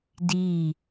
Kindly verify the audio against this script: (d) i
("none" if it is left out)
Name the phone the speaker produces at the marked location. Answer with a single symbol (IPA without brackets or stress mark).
d